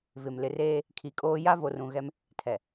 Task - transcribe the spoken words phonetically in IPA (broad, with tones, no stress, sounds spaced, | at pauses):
v ɪ˨ m l ɪ˨ r eː˦ | kʰ i˨ kʼ oː˦ j a˦ v o˨ r ũ˨ ɣ ɛ˦ m | tʰ ɛ˨